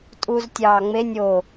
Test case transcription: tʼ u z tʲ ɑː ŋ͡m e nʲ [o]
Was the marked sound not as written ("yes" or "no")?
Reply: no